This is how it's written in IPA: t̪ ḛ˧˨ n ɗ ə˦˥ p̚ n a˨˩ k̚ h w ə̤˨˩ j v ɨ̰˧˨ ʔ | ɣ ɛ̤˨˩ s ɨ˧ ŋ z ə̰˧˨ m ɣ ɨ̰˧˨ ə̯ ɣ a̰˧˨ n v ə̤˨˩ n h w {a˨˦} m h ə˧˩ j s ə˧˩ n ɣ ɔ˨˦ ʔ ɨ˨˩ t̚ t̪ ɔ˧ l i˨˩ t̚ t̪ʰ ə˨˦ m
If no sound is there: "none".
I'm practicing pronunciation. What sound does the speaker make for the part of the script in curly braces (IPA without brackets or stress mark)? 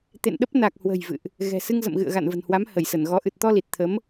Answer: a˨˦